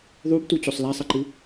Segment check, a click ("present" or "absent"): present